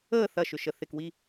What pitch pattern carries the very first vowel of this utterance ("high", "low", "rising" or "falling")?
falling